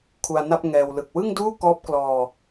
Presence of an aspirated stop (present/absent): present